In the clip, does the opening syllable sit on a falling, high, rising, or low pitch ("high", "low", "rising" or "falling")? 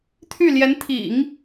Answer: falling